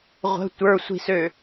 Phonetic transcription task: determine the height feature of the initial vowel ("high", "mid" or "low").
mid